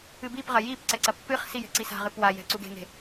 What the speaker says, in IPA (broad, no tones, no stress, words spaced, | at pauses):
ɨbipʁɐ jipǀɛ ǀɐpːɨχsi jɛ̤ǀisa̤ʁɨ pwajɛ̤ ǀuɡe̤ŋe̤